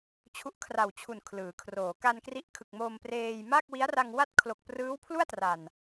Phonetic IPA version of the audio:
t͡ɕʰu˦˥ʔkʰra˨˩wt͡ɕʰu˨˩n kʰlɯː˩˦kʰroː˩˦ ka˧nkri˦˥ʔkʰɯ˨˩k̚ mo˧mpreː˧j ma˥˩k̚wi˦˥a̯ra˧ŋ wa˥˩t̚ kʰlo˨˩k̚prɯː˦˥wpʰlu˥˩a̯tra˨˩n

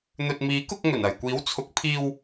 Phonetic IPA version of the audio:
n̪ɵ˨t̚miː˨˥kʊ˧k̚ ŋɵ˨˩nɐ˨jkʷiː˨˥wt͡sʰʊ˨˥k̚ pʰiː˧w

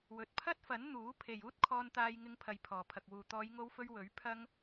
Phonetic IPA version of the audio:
wɵ˨t̚pʰɐ˥t̚fɐ˨˥n n̪uː˨˥ pʰe˨juː˥t̚kʰɔː˧nt̪aː˧j ŋɪ˧ŋpʰɐ˨j pʰɔː˨˩pʰɐ˨k̚wuː˨ t̪ɔː˨˧jŋo˧wfɵ˧ɥ wɵ˨˥ɥ pʰɐ˥ŋ

